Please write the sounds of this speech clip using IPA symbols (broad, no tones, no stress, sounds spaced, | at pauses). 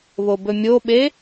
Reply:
β o b ɵ mʲ o ɓ e